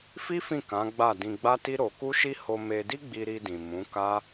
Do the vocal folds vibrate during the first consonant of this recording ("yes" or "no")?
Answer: no